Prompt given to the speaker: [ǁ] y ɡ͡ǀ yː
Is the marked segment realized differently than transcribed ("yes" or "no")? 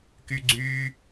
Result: yes